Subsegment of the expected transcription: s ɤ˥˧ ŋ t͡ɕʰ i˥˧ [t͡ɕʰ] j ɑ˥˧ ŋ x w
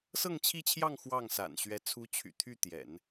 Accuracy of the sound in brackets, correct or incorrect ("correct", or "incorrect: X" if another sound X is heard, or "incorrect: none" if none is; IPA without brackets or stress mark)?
correct